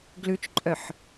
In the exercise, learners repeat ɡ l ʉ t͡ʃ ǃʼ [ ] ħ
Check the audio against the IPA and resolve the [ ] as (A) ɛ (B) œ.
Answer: B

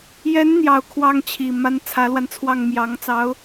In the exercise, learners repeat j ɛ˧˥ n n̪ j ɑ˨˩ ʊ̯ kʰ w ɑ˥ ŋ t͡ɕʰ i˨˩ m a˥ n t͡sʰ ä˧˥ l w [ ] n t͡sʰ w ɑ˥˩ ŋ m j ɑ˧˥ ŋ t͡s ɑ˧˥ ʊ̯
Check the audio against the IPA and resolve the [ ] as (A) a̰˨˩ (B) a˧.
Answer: B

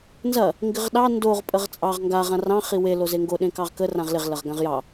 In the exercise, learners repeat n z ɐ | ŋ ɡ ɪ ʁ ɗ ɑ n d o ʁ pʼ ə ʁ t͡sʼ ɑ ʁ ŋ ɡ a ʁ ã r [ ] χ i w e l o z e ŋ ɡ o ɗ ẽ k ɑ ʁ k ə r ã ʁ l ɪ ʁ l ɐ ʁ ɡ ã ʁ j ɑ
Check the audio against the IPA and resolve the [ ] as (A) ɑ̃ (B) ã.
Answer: A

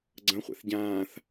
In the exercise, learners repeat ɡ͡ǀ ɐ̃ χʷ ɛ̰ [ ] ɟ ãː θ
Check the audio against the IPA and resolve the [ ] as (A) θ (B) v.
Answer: A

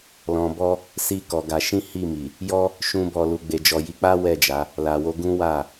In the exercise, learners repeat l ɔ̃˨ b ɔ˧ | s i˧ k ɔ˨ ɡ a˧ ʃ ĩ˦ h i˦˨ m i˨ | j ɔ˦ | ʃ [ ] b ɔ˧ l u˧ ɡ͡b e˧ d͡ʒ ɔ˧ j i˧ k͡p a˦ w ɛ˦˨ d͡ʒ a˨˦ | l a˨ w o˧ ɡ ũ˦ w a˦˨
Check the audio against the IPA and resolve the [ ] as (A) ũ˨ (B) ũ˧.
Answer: B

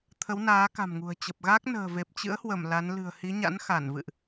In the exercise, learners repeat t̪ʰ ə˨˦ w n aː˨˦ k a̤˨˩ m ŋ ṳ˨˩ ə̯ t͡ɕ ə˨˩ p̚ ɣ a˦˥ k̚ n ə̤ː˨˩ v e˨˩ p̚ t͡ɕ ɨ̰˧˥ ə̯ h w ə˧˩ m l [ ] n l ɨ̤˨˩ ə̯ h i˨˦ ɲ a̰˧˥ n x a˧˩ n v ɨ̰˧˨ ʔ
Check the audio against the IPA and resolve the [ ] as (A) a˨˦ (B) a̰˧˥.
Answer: A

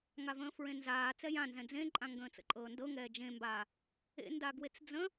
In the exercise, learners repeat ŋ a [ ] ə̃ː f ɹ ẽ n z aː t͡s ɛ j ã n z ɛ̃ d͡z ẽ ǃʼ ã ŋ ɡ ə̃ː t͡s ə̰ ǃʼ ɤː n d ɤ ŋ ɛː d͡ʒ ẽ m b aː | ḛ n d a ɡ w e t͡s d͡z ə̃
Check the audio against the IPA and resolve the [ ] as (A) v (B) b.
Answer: A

